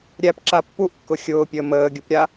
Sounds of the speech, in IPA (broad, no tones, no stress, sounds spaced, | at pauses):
ɾʲ æ p ǁ a pː u ʔ kː ʊ xʲ ʊː pʲ əː m əː ɡʲ u p ɾʲ a